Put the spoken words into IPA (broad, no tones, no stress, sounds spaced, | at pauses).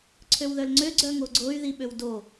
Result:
ǀʰ ø w ð œ l ŋ͡ǀ ø ɡ͡ǀ œ ŋ o ɡ͡ǀ o y̯ ð i ɓ ø w d o